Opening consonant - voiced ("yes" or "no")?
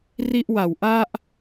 yes